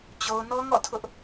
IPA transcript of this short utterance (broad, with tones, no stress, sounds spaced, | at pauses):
t͡ɕ o˨ ʊ̯ n ɔ˦ ŋ ɔ̰˦˨ tʰ ʊ˦ ʔ